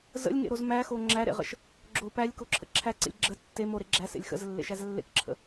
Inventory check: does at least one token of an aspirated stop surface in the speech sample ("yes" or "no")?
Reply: yes